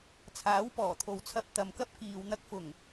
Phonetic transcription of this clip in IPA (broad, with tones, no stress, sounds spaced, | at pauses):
t͡sʰ aː˨˥ w p ɔː˨˩ t̪ʰ o˨ w t͡sʰ ɐ˧ p̚ t̪ ɐ˨ m k ɐ˥ p̚ k iː˨ w n̪ ɐ˧ k̚ f ʊ˨˩ ŋ